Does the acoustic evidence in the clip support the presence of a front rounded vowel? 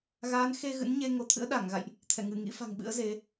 no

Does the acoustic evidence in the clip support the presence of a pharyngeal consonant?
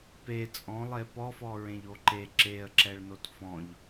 no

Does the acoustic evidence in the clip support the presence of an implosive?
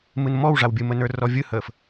no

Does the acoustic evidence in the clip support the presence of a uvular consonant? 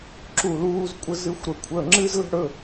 no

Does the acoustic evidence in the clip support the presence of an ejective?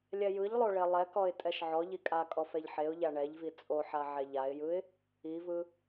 yes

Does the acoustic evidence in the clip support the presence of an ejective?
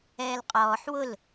yes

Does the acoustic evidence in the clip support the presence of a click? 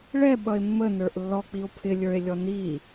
no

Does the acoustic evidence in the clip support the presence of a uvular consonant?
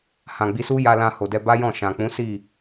no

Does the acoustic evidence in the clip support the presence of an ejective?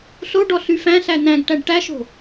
no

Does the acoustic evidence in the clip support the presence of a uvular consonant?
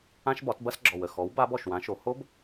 no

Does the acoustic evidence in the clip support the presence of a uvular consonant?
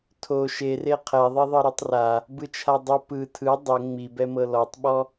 yes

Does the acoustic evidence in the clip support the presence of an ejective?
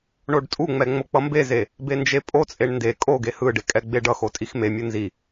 yes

